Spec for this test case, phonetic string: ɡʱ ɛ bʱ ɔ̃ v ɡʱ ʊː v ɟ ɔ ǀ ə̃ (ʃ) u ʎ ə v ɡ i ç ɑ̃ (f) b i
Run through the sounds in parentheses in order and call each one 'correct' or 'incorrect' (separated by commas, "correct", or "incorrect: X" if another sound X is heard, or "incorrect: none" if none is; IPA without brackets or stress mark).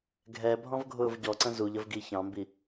incorrect: z, incorrect: m